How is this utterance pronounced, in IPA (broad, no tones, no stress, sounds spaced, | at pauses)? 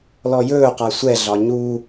l ɔ j ɵː q a sʷ ɛ ɮ ɒ ɲ u